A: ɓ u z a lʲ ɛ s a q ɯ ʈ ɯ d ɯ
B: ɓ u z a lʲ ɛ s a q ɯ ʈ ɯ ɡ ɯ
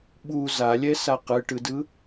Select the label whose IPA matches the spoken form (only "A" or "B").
A